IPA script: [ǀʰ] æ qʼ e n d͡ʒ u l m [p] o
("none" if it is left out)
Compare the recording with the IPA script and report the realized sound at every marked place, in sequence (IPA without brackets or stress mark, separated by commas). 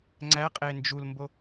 ŋ͡ǀ, b